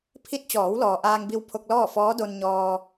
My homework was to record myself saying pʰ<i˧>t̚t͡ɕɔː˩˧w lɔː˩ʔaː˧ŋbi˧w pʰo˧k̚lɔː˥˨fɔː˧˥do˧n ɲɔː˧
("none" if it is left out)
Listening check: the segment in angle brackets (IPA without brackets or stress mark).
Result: i˧